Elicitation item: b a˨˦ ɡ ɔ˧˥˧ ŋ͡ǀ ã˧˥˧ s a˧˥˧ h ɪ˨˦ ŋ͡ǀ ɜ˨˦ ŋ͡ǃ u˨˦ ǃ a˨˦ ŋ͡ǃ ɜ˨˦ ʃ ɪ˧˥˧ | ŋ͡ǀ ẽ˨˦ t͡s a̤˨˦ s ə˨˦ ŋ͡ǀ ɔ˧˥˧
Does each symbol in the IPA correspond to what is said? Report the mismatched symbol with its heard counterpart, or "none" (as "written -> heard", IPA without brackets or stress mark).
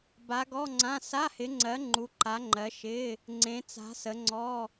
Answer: none